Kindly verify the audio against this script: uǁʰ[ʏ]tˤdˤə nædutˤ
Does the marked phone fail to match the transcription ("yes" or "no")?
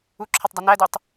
yes